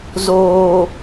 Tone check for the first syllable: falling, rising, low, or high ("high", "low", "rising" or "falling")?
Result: low